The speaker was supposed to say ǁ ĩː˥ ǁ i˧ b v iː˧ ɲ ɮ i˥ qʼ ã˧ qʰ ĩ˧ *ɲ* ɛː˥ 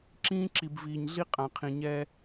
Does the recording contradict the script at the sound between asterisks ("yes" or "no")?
no